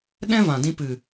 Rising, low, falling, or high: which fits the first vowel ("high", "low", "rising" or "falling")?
high